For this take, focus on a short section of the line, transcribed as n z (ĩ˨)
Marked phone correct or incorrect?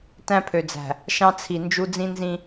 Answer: incorrect